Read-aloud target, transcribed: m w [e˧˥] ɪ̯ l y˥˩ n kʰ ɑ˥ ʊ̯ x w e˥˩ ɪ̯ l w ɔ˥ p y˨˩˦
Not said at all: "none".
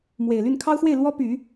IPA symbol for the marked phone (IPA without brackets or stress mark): e˨˩